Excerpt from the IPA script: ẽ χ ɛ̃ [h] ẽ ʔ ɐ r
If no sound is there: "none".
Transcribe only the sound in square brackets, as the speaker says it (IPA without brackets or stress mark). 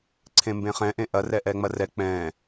ʔ